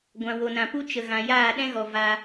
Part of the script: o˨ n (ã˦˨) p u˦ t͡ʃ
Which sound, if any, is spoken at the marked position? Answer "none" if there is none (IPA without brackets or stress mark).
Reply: ã˨